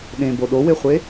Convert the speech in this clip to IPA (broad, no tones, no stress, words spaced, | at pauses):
ɗẽbo ɗoweχʷe